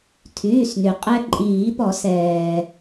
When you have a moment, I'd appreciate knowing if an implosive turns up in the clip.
no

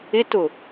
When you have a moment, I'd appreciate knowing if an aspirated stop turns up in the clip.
no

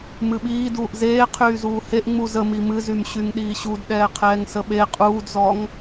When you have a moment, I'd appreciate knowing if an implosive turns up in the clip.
yes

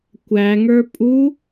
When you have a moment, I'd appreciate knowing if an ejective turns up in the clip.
yes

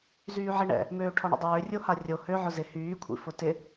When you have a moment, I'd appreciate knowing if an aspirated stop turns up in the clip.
yes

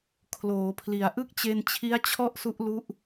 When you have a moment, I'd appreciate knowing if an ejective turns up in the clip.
no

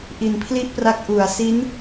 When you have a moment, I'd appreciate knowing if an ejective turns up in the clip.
no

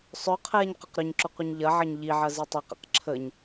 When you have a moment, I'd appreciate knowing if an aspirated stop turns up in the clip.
yes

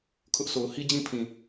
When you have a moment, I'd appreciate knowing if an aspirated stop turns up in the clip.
yes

